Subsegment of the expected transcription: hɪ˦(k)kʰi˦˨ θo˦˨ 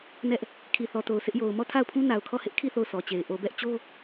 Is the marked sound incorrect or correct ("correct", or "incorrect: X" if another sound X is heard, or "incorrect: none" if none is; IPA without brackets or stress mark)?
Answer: incorrect: ʔ